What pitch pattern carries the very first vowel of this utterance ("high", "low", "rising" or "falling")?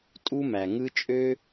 high